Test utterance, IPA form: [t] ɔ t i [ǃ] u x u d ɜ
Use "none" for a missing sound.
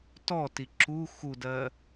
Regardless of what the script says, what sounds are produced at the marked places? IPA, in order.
t, ǁ

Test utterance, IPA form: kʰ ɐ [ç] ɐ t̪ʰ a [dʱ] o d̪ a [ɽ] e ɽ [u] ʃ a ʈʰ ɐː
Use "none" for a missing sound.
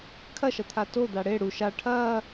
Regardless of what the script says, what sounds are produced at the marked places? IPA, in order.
ʃ, t, ɽ, u

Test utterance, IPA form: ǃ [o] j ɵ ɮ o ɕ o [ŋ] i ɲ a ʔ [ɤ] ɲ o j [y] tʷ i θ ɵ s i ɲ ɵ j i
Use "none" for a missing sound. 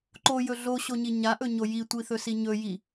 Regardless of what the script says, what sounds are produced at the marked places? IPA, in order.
o, ɲ, ɵ, i

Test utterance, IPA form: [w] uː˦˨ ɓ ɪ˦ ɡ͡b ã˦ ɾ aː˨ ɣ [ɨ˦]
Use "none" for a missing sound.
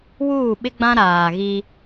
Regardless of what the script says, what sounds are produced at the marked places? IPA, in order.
w, i˦

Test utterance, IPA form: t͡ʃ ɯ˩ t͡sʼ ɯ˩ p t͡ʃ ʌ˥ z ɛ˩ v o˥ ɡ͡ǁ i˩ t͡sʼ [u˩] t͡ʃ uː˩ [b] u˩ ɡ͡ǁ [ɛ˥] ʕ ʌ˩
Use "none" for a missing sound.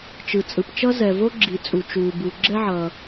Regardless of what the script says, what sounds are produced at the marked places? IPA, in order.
u˩, b, ɛ˥

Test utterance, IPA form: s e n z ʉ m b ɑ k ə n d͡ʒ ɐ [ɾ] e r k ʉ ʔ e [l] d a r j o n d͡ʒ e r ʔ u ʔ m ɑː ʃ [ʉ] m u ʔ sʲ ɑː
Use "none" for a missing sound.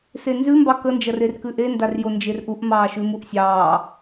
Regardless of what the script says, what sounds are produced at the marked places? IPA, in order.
r, n, ʉ

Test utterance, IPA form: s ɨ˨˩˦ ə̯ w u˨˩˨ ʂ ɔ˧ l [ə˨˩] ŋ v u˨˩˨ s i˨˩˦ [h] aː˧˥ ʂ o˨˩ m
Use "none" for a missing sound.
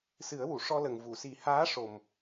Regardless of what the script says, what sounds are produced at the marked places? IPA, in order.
ə˨˩, h

